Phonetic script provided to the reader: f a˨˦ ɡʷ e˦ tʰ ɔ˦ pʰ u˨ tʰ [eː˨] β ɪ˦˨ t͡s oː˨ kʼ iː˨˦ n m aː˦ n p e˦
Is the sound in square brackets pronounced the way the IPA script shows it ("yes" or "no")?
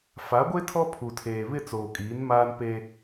yes